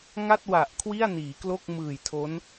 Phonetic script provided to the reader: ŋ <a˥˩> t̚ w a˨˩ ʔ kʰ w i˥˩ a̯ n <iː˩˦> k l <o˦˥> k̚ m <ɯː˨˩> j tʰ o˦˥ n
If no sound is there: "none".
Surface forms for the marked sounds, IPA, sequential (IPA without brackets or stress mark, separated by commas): a˥˩, iː˩˦, o˥˩, ɯː˨˩